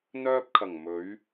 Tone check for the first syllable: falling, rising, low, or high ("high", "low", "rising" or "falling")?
high